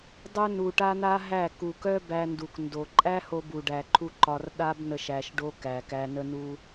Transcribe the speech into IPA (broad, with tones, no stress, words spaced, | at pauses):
dˤœ˦nu˨ʈa˦n̪a˦ ɦæ˦˨ ku˨kœ˦ bæ˧ndu˨kndo˨ ǃʼæ˦ho˧bu˨ɖæ˨ ǃʰu˦ ǃɒ˧r ɗa˦bnə˧ʃ æ˧ʃɖo˦ kæ˨kæ˧ nə˦nu˦